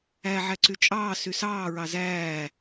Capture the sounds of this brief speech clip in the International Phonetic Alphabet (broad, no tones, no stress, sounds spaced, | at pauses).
æ ʕ æ ǀ y t͡ʃʼ ɑː s y s ɑː ɹ ɑ z æː